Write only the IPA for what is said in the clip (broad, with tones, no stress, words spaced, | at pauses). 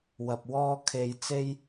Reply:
wɐ˨p̚wɔː˥kʰe˧j t͡se˥j